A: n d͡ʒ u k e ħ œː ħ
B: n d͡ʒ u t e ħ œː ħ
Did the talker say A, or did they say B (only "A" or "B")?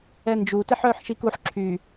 B